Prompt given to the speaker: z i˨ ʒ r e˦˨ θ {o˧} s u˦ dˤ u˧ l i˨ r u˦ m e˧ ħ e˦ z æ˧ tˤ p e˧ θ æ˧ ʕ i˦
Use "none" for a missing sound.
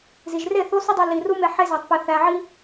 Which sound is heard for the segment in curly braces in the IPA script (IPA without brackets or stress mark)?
o˦